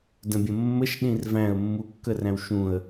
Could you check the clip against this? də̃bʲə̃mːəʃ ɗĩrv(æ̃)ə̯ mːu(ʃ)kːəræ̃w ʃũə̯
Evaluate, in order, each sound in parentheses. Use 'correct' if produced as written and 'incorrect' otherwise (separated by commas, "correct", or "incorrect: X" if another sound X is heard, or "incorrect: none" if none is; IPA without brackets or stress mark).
correct, incorrect: none